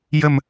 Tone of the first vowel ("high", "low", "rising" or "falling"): low